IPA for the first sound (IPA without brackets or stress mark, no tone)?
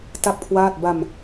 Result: t